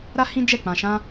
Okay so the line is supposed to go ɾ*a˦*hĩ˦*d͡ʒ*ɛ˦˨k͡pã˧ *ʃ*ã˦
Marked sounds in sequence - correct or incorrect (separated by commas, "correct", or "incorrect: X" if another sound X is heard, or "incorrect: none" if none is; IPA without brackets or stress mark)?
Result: correct, correct, correct